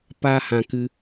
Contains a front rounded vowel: no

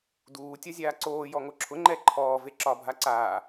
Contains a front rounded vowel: no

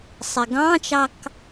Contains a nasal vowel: yes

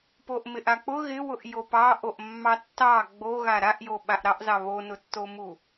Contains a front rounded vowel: no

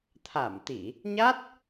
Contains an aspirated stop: yes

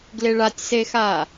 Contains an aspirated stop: no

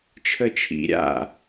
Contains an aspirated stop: yes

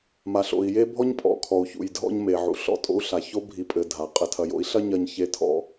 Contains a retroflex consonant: no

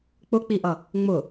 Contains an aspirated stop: no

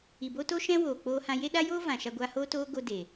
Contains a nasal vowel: yes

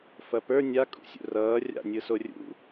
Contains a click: no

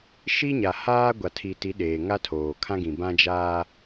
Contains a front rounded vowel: no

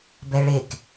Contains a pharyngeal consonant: no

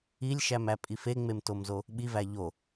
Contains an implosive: yes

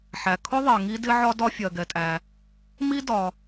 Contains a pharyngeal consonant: yes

